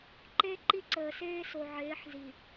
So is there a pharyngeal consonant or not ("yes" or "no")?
yes